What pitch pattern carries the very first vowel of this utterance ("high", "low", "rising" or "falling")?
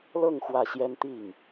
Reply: falling